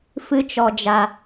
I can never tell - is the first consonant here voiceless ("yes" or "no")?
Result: yes